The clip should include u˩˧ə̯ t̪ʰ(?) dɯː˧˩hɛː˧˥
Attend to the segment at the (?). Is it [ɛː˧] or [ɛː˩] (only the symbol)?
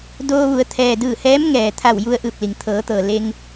ɛː˩